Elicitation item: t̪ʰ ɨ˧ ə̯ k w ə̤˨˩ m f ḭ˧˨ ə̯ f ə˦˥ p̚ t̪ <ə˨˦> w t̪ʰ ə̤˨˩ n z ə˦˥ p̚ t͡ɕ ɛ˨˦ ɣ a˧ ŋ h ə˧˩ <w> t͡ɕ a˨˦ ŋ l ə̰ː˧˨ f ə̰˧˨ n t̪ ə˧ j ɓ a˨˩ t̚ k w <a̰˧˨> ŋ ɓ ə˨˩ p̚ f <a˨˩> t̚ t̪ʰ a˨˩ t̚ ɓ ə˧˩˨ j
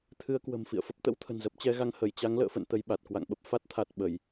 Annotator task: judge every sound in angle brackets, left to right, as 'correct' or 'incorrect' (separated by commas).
incorrect, incorrect, correct, incorrect